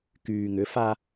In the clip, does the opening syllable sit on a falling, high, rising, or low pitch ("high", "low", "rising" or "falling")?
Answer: low